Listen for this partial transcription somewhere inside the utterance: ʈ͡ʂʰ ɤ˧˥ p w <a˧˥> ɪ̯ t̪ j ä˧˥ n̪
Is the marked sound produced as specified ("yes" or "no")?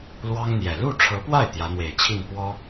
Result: no